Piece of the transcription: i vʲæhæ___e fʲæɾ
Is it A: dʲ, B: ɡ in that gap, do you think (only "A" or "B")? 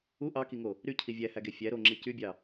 B